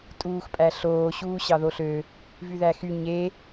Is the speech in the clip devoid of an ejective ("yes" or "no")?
no